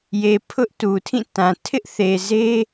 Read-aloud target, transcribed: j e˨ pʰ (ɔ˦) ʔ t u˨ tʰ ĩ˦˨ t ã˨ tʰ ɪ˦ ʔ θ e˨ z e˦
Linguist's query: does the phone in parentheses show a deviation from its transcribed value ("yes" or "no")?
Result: yes